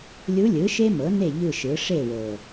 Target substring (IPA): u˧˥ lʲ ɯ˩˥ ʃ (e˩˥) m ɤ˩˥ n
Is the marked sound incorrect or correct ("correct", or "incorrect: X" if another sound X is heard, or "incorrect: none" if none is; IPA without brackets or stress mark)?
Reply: incorrect: e˥